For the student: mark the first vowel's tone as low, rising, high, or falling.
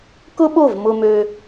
high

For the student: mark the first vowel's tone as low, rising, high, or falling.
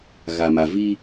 low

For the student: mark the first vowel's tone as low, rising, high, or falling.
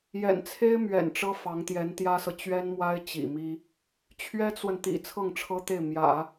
low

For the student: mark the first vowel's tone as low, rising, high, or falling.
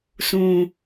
low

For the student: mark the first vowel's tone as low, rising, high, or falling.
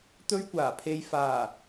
high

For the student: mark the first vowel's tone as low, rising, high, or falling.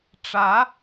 rising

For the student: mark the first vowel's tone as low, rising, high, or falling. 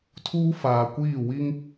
high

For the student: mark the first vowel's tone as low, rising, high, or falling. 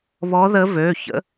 rising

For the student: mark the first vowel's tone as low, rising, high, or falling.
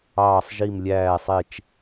falling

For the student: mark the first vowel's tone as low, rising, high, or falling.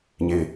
high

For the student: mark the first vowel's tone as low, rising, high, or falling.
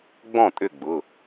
falling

